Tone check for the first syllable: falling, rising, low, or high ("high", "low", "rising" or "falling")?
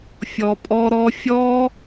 low